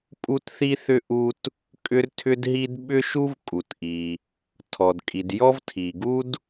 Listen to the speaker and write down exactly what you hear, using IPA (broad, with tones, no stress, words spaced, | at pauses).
pʼu˥tθi˥θʏ˥ ʔu˥t | kʼʏ˥rtʰʏ˥dɦi˥d ɓʏ˥ʃu˥vkʼu˩t ʔi˩ | tʰɔ˩dkʼi˩djɔ˥v tʰi˩ɡu˥d